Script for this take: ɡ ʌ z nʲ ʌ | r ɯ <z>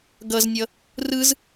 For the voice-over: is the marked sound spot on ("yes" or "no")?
yes